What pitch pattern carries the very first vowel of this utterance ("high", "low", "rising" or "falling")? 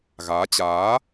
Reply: rising